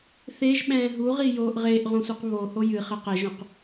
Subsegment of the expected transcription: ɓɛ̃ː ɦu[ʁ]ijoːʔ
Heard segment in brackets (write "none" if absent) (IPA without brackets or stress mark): ʁ